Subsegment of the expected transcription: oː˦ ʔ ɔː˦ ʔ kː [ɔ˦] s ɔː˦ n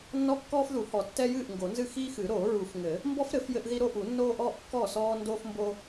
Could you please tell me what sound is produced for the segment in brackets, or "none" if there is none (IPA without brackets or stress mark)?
ɔ˥˩